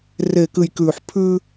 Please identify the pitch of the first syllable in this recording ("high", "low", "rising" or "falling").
low